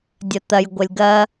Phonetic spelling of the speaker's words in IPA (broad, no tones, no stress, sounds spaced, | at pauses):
dʲ ɐ t̪ ɐ j ɡʷ ɐ lʲ ɡ ɐ